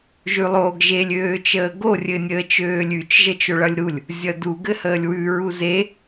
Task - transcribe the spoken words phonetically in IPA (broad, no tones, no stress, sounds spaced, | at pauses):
ʒ ʉ lˠ oː ɡ ʒ e lʲ øː t͡ʃ əː ɡ o rʲ ɘ nʲ əː t͡ʃ øː lʲ ʉ t͡ʃ ʒ ə t͡ʃ o ɭ ʌ lʲ ɾ u lʲ | zʲ ʌ d u ɡ ɘ h əː lʲ w ʉ ɹ u z e